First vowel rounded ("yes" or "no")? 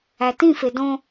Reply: no